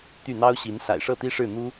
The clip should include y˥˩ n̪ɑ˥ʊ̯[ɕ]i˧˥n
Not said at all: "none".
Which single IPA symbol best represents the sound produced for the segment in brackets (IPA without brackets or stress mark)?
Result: ɕ